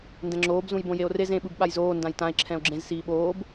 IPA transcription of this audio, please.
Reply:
n d ɛ̃ ŋ͡ǁ oː b z ũ j b õ j e o̯ r e z ẽ ɓ ɯ b ɓ a j z oː n d ã j t ã e̯ ǁʰ ɛ̃ o̯ ɡ͡ǁ ẽ z s iː ɓ oː b

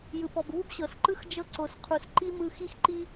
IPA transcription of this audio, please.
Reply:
j ɯ˩ p ɔ˩ b β u˥ b ɕ ɤ˩ s ǃ ɯ˥ x d͡ʒ ɤ˧ ǀ o˩ s qʰ u˩ s ǃ i˧ m ɯ˧ x i˥ x ǃ i˥

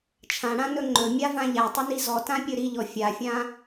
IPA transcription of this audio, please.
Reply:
t͡ʃʰ ã ɽ ã n ɵ ŋ͡ǃ ɵ mʲ a v ã ʎ a tˤ ɵ n i z ɔ t ã pʲ ɵ ɾ i ʎ ɔ fʲ a fʲ ã

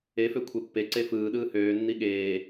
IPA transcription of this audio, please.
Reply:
e f ø kʷʰ e pː e ǀ e f ɯː ɗ ɯː h øː nː i ɠ eː

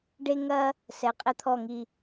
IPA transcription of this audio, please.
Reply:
ɖ e˧ ŋ ɐ˧ | s ɛ˩˧ qʼ ɘ˧ t̪ʰ ɔ˧˩ ŋ i˧˩

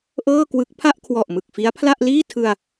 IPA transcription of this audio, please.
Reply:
ʔ ɤː˥˩ k w ɯ˦˥ k̚ pʰ a˥˩ ʔ kʰ w ɔ˨˩ ʔ m ɯ˨˩ k̚ f i˦˥ a̯ pʰ l a˥˩ ʔ l iː˥˩ tʰ ɯ˧ a̯

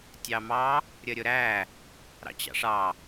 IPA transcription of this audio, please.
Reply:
tʲ ɑ m ɑ | ɾʲ ə ɾʲ ʊ ɾ æ | ɾ ɑ̰ t͡ɕ ɑ̰ ʂ ɑ

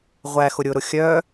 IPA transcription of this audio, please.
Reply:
ʁʷ æ x ʊ ɾʲ ʊ ɾ ʊ xʲ œ

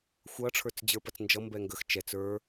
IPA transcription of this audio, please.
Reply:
xʷ ʌ ʈ͡ʂʰ ə˞ t͡s d͡ʑ ə˞ p ɐ t͡s n d͡ʒ ʌ m b ɛ ŋ ɡ ə x t͡ʃ ɛ t͡s ə˞

